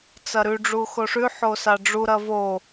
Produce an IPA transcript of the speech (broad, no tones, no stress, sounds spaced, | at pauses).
t͡s ɐ ɾ ʉ ɖ͡ʐ u x o ʂ ʉ ħ o s a ɖ͡ʐ u ɾ ɐ v o